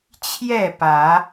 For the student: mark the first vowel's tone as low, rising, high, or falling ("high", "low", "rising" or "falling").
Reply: falling